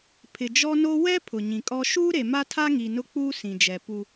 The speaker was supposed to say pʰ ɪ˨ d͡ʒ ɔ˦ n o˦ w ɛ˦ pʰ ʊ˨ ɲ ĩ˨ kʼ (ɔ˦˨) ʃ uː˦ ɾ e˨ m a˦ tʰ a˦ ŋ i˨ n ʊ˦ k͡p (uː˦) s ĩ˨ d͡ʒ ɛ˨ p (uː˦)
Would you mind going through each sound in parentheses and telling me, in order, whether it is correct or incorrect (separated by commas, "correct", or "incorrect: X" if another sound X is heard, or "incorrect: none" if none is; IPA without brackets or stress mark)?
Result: incorrect: ɔ˦, correct, incorrect: u˦